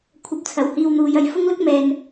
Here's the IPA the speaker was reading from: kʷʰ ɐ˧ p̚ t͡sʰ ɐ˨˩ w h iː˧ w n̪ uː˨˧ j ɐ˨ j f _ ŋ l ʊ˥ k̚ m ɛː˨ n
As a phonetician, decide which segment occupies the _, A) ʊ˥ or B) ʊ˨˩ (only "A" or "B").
A